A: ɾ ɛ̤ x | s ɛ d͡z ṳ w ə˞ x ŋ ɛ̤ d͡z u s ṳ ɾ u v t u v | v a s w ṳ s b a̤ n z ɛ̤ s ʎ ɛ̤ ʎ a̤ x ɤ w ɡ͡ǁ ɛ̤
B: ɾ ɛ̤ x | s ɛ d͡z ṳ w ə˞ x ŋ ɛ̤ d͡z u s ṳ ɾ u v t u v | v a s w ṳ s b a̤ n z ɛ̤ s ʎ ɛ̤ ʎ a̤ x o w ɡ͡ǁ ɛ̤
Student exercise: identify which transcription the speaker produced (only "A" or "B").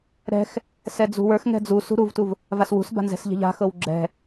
A